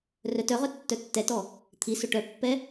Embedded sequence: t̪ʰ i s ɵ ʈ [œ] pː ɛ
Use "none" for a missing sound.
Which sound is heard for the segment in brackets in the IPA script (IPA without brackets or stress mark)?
œ